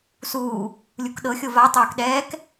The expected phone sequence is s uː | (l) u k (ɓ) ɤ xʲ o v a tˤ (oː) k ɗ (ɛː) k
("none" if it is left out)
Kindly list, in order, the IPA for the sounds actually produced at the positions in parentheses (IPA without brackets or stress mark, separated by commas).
lʲ, ɗ, oː, ɛː